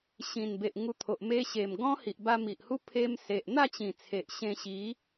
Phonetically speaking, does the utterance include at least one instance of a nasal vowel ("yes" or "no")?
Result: yes